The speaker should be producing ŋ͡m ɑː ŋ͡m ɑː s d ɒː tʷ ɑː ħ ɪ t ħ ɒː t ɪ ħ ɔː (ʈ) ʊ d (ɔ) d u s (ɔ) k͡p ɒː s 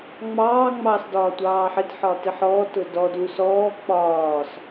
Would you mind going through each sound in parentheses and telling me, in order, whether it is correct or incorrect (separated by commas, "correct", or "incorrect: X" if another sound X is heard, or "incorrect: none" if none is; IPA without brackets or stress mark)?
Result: incorrect: t, correct, incorrect: ɔː